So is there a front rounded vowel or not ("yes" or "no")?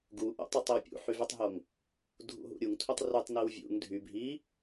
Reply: yes